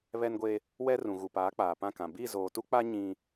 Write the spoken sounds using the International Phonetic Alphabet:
β ɛ˦ n ɡʷ e˦ | w ɛ˦ r ũ˨ ɣ u˨ p aː˨˦ k͡p aː˨ p ã˦˨ k ã˨ b i˦˨ z oː˨ t u˦ k͡p a˦ ɲ ĩ˦

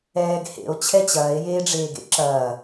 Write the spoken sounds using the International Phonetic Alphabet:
ɛː ɡ h ḛ o̯ t͡ɕʰ ɛ t͡ɕ ɐː e̯ j eː ɖ͡ʐ eː ɡ ḛ ǁ ɐː

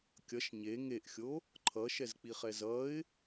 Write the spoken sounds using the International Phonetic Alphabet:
kʲ ʌ ʃ ɲ e ŋ e ʔ xʲ o | ǃʰ ʌ ʃ ɛ z k͡p i χ ɛ z ʌ ɪ̯

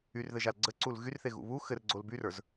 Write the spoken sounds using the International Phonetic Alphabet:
y r ð ɘ ʒ a l ɡ͡ǀ ə ǀ u l ɣ y r θ e ɣ ṵ β u x ɘ r ɡ͡ǀ o l b y r ə˞ z

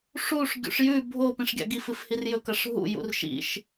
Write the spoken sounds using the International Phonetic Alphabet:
ʂ u ʂ ɡʲ ṵ ʂ j ʉ bʱ o p ĩ ʂ ɡʲ a̰ ɡ i f ɨ f h i r j ɵ k ɐ ʂ ɦ ṵ j ṵ r ʃ ḭ ʃ

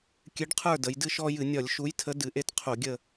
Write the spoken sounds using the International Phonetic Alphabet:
kʲ ɨ˨˥ ɖ qʰ ə˞˥˨ d ə˩˧ j d ɨ˦ ʃ ɔ˦ j ɨ˧˩˧ nʲ ɒ˧˩˧ lʲ ʃ u˨˥ j tʰ ə˨˥ d ɨ˩˧ ʔ e˦ t qʰ u˧˩˧ ɡʲ ə˥˨

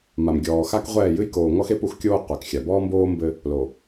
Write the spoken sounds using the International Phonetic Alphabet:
m a˨ m ɡʲ ɔː˨ x a˦ k ʁʷ ɛː˦˨ j ɨ˦ j k oː˨ ŋ ɔ˦ x e˦ p u˨ x kʲ oː˦ qʷ ɛ˨ k xʲ a˨ b ɔː˦ m b oː˦ m b ɘ˦ | l o˨

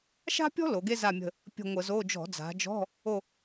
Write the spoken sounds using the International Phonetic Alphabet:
ʃ a̤˥ pʲ ɔ̤˥ l o˩˧ ɡ e˥ z a˦˨ mʲ ə̤˦˨ | pʲ ə̤˦˨ ŋʷ ə˧˩˧ z o˧˥˧ d͡ʒ ɔ̤˧˩˧ d͡z a̤˩˧ d͡ʒ ɔ̤˧˥˧ | o˦˨

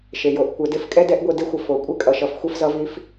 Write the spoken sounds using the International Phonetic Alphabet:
ʃ e˩ j o˩˧ ʔ kʷ ɛ˩˧ d e˧˥ f kʼ ɛ˥ d ɛ˧˥ ʔ ɡʷ e˧ d e˥ xʷ ʌ˩ f o˩ kʷʼ e˥ kʼ ʌ˩ ʃ ʌ˩˧ f xʷ ɛ˧ f z ʌ˩˧ v i˩˧ f

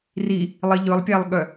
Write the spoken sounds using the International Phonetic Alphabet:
r i | lˠ i ʎ ɵ lˠ pʲ æ lˠ ɠ œ

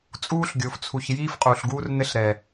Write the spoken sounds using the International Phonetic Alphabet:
t͡sʼ uː˦ ɬ ɡʲ o˨ f t͡sʰ u˨ ç j iː˦ f qʼ uː˨ ɬ ɡ uː˦ r n ɘ˦ ɬ ɾ ɛ˨

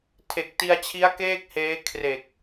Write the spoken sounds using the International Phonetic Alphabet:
tʰ e˨˩ k̚ t i˧ a̯ t͡ɕʰ i˦˥ a̯ k eː˥˩ k̚ h eː˦˥ kʰ r e˨˩ k̚

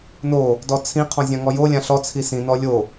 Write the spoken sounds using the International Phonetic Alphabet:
n o | d ɔ t͡sʰ ĩ qʰ ɔ̃ zʲ ã ŋ ɔ j o lʲ ã ɬ ɔ t͡sʰ i s ĩ n ɔ lʲ o

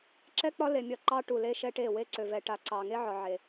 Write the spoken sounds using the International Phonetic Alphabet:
ǁ ɛ˦ k͡p ɒ˦ l e˨ mʲ ɒ˦˨ ǃ ɑ˦ ʈ u˨ l e˦ ʃ ɛ˦ ʈ e˦˨ w e˦ ǀ ø˨ v ɛ˨ ʈ a˨ ǀ ɑ˨ ŋ e˦ ʕ ɒ˨ ʕ e˨

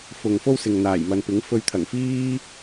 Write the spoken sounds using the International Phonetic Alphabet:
f ʊ˧ ŋ f o˥ w s ɪ˨ ŋ n̪ aː˨˩ j m ɐ˨ n p ɪ˨˥ ŋ f ɵ˧ ɥ t̪ʰ ɐ˨˩ ŋ f iː˥

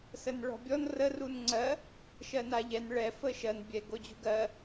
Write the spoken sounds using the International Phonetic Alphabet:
s ə n ɭ ɔ̤ bʲ ɔ n r ə r u n ŋ͡ǀ ɜ | ʃ ɜ n a ʎ ɛ n ɭ ɛ f ə ʃ ɜ n bʲ ɛ ɡ o d͡ʑ ṳ ɡ ɜ

